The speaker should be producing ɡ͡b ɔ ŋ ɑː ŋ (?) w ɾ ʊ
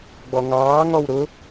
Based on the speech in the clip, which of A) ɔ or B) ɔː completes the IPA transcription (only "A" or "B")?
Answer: A